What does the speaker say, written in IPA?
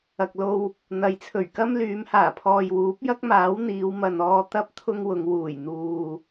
ɐ˨k̚lo˧w | n̪ɐ˨˧jt͡sʰɵ˨˩ɥkɐ˥m lyː˨˧mhaː˨˩pʰɔː˨j wuː˨˥p̚jɐ˥k̚maː˨˥w n̪iː˨˧wmɐ˨nɔː˧ t̪ɐ˥p̚ t̪ʰʊ˥ŋwʊ˨˧ŋ wuː˨˩j n̪uː˨

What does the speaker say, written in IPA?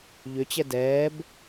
ʎʏt͡ɕɛ dɛːb

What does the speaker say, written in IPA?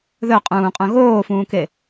ðœqʼũːqʼœ̃ ɣoːfũːke

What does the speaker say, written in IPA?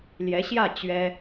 ljɛ˧˥ɕjä˥˩ t͡ɕɥɛ˥

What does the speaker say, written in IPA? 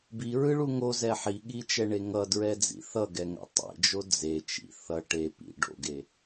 biɹɯɭu ŋozɛ ħiɠit͡ʃɛɳe ŋʌdɹɛd͡zḭ θʌɡɛŋo̰ tˤḭd͡ʒo d͡zet͡ʃḭ θʌ ʈe pḭ ɖo̰ɡe

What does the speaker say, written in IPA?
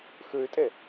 xʉy̯tʼe

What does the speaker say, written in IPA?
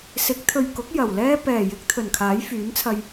sɪ˨˥k̚t̪ʰɵ˨ɥkʊ˨˥k̚ jɐ˨˩wlɛː˥ pɛː˨˩jɪ˨˥k̚ t̪ʰɵ˨˩nkʰaː˨˥jfyː˨˥mt͡sʰɐ˧j

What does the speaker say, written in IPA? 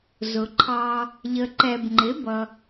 zʊ˨ǃʰɑː˧ | ʎə˨ǃɛː˨bŋ͡ǃɪ˨˦ bʌ˧

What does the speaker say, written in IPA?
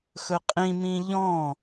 xɵqʼĩmĩ ʎɔ̃

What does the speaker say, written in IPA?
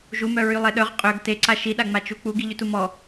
ʒumœ ɹylˠeɗœʁ qʼøɡ teǀa ʃiɗaŋ͡ma t͡ʃuk͡pu ɡiʎytumɔ

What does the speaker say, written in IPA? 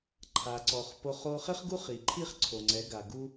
ǃʰa˨ǀɔ˨χ po˧χ o˧χɪ˦χɡu˦χ i˨ǃʰi˦χ ǀʰo˨ŋ͡ǀɛ˨˦ɡa˨ɡu˦

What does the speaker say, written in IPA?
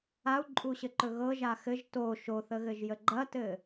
au̯ǃʼuɕɘǃɵ ɣɤʒa xɘʒ to ʃoθəɣɘʒ jəɡ͡ǃɐtɘ

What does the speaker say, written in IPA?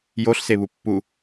joɬ seβupːu

